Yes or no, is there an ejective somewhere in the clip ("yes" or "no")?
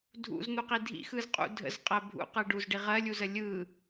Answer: yes